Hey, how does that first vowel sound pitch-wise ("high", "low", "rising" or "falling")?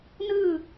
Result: falling